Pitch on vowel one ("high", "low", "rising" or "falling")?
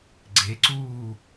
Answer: rising